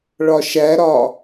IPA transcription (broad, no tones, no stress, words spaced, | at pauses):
ɭɒʃæɾɒ